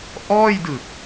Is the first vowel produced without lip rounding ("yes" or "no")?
no